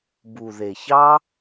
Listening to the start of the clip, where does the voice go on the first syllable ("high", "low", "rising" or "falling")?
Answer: low